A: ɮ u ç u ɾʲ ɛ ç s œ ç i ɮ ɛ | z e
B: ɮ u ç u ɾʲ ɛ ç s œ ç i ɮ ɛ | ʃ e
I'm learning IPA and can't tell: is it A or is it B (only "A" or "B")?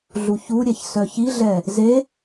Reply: A